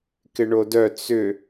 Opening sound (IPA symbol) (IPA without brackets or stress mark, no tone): k